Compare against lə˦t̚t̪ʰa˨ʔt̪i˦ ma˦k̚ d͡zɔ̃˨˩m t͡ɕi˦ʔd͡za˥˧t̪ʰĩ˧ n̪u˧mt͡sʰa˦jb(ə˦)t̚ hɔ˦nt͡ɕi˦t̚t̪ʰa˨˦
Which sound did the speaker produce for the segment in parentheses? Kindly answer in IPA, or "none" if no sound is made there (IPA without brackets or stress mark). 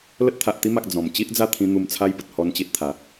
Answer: ə˨